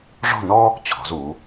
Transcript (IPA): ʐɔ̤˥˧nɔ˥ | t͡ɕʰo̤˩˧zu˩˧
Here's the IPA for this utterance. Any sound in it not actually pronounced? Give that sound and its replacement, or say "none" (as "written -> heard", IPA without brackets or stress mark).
o̤˩˧ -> ɔ̤˩˧